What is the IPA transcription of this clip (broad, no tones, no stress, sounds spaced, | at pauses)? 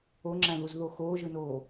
o ŋ͡ǁ æ̃ ð u z ð o x oː ʒ ɯ n oː